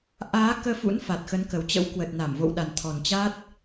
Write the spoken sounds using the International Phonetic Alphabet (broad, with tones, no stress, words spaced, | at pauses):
ʔaː˨˦ kəː˧fṵ˧˥n fa˨˩t̚xə˨˦nkə˨˩wt͡ɕə̰˧˥w kwə˨˩t̚ na˧˩mvo̰˧˨wɗa˨˩n t̪ʰɔ˨˩nt͡ɕa˦˥t̚